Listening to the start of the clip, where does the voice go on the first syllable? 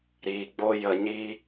low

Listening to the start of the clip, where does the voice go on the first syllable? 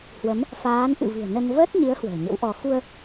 rising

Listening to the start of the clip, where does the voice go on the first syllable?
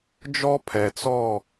high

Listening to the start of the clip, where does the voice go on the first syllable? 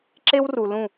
high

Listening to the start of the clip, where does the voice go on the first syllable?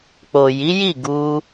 low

